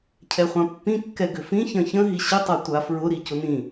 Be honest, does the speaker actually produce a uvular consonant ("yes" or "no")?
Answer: yes